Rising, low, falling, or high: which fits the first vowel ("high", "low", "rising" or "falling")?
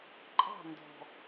falling